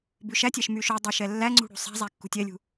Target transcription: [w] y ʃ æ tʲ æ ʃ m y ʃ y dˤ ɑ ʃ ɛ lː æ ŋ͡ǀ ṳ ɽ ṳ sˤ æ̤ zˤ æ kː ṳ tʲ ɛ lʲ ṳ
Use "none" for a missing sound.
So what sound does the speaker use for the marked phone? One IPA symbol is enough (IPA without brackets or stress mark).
b